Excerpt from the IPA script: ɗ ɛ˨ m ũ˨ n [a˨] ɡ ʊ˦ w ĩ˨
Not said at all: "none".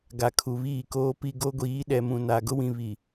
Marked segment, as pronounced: a˨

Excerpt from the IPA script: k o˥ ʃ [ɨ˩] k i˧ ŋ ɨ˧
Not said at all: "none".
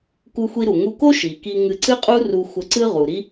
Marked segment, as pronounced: i˩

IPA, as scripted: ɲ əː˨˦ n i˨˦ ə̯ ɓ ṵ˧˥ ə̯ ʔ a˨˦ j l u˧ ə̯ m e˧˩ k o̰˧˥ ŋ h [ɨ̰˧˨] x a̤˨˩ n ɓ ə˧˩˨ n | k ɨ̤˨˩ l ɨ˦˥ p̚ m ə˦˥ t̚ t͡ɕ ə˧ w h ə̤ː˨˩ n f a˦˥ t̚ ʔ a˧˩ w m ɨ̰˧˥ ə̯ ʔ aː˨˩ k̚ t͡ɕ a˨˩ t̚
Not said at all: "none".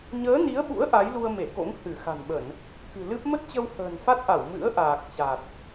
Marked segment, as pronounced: ɨ˧˩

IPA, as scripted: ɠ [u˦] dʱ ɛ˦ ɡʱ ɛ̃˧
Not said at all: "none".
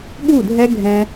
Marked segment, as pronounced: u˦˨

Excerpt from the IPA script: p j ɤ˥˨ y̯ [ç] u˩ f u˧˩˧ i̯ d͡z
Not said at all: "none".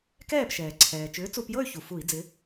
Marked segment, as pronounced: ç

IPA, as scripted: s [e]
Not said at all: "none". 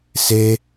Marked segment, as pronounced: e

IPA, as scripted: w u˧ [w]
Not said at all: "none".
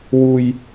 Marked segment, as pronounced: j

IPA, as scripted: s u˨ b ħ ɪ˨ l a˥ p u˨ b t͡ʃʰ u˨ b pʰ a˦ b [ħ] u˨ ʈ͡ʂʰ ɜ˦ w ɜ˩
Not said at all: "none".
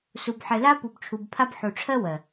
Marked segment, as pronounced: ħ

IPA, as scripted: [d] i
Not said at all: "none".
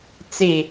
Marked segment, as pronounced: t͡s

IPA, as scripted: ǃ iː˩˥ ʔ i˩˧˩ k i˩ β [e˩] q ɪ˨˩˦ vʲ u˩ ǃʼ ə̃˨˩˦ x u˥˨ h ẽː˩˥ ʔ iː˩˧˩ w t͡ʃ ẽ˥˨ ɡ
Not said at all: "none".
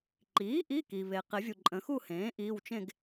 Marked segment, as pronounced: e˩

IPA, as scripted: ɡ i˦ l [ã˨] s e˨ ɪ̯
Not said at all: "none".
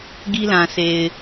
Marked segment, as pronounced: ã˨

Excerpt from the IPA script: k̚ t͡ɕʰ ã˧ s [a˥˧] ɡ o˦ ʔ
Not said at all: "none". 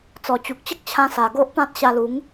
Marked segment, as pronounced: a˨˩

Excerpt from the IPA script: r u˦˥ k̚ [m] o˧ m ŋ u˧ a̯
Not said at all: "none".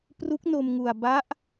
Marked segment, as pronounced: n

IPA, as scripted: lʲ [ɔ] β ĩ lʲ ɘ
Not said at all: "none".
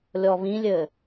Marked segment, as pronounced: ɔ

